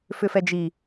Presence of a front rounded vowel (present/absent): present